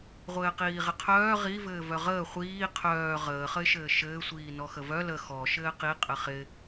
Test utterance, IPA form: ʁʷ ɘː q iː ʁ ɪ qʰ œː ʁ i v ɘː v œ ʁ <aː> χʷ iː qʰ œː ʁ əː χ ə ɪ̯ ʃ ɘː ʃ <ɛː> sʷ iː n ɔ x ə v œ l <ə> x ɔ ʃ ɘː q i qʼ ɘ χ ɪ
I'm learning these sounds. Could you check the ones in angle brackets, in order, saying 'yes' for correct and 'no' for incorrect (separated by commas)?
no, no, yes